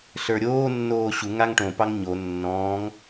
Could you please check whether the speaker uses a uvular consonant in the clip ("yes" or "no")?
no